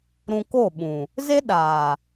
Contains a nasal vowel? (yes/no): yes